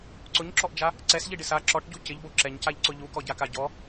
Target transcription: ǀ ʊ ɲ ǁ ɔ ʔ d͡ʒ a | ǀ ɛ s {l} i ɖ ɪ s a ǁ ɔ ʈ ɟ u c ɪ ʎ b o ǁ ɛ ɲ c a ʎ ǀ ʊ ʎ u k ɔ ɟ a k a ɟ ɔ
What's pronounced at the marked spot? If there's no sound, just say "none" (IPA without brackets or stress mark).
ʎ